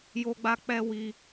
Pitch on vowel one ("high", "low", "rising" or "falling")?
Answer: high